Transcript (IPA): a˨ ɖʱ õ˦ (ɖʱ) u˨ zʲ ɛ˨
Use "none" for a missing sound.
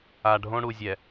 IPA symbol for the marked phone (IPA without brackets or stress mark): ɽ